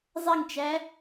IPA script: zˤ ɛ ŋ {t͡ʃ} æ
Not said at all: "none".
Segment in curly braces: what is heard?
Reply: t͡ʃ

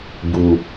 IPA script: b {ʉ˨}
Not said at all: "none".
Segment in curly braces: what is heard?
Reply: u˨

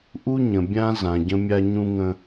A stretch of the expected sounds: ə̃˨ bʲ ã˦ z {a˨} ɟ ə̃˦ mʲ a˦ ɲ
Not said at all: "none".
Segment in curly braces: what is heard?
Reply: ã˨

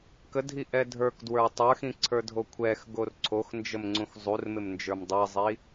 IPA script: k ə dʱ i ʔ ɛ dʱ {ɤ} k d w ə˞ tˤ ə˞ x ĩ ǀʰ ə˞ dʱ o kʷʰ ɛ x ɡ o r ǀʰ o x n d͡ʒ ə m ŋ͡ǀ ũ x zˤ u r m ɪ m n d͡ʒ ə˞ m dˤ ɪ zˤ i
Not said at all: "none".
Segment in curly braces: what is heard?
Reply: ə˞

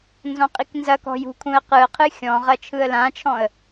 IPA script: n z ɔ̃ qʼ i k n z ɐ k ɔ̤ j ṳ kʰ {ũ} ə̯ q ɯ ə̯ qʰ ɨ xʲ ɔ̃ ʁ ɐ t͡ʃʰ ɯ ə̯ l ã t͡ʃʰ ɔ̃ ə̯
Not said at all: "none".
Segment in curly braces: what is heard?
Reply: ũ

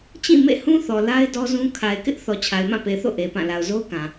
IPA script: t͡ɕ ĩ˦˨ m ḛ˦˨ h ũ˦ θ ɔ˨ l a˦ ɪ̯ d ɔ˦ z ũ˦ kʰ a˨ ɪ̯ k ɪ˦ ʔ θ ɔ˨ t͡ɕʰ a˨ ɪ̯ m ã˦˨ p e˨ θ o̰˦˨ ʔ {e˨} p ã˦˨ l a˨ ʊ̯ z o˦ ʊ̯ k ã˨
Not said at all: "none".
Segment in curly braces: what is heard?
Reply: e˨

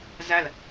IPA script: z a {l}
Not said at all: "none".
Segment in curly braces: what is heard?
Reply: l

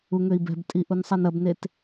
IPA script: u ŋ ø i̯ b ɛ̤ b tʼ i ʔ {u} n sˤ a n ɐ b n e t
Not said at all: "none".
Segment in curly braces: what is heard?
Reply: u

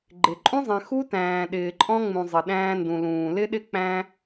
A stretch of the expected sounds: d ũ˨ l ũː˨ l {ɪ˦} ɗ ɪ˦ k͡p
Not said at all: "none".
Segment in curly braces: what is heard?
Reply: ɪ˦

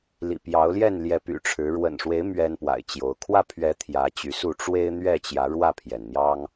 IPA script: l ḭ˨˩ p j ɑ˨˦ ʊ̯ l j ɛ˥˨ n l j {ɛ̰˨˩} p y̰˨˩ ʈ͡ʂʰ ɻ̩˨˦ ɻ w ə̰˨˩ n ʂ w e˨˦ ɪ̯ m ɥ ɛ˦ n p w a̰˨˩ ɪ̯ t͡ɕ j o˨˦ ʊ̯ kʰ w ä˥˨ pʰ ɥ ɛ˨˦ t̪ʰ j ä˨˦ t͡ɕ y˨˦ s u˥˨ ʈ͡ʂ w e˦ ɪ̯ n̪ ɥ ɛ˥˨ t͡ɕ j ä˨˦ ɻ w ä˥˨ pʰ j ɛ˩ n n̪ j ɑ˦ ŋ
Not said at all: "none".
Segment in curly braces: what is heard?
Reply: ɛ˨˦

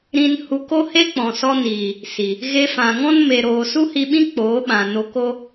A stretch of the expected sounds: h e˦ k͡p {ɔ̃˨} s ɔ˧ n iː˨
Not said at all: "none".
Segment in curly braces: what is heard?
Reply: ɔ̃˨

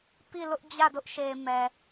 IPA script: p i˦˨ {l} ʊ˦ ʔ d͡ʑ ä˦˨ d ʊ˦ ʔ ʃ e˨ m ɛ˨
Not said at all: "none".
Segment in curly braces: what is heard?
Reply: l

